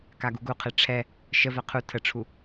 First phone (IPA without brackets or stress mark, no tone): k